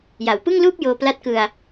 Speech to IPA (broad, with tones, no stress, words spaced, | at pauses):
ja˩˦wpɯ˥˩ŋluː˥˩p̚ joː˧pla˦˥t̚kɯ˧a̯